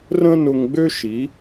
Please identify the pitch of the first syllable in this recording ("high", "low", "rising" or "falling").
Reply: high